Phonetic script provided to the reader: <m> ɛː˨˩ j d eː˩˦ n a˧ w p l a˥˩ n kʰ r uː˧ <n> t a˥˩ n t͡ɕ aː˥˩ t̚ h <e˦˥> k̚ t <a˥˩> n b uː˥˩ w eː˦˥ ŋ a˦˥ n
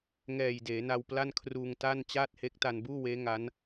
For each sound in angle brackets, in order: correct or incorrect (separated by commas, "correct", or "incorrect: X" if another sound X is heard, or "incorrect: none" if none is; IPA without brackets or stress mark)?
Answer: incorrect: ŋ, incorrect: ŋ, correct, incorrect: a˧